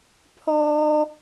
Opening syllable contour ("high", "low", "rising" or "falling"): high